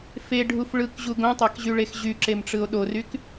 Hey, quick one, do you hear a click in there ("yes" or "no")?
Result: yes